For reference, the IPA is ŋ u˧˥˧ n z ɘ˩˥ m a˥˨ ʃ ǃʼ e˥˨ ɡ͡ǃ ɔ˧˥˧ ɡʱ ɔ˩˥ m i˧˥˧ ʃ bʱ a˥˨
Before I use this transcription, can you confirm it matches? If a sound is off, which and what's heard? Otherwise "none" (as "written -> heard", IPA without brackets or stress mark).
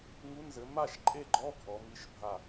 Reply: none